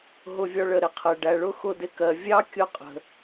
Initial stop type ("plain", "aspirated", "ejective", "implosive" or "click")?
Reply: aspirated